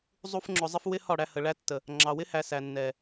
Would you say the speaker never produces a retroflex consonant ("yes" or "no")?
no